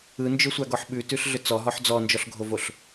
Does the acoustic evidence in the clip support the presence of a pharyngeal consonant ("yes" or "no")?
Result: yes